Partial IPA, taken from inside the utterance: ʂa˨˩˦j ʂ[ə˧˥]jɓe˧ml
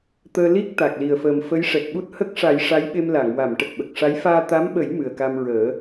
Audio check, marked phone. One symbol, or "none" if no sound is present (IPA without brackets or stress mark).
a˧˥